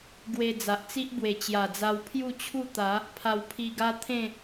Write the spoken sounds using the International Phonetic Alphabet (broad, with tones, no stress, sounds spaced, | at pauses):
ɡ w e˧ d͡z a˨ ʔ t͡s i˦ ʔ b w e˨˩ t͡ɕ j a˨˩ d͡z a˧ w pʰ j u˥˧ t͡ɕʰ u˥˧ t̪ a˨˦ | pʰ a˧ w pʰ i˧ ɡ a˦ t̪ʰ ẽ˥˧